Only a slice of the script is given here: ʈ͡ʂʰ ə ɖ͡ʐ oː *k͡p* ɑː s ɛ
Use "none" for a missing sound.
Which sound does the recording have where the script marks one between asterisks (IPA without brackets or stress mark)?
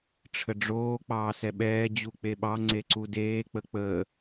k͡p